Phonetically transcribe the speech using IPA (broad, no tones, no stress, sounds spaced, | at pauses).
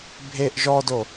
bʱ e ʔ ʒ ɔ d o